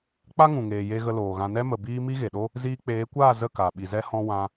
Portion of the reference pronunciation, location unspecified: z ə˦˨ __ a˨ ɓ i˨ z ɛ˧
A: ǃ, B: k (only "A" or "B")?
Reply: B